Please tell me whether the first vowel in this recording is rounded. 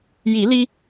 no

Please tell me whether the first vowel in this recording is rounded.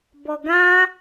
yes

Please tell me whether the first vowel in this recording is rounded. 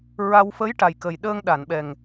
no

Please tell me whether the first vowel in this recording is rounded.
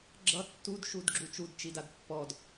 no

